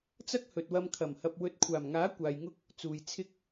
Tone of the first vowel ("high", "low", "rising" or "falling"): high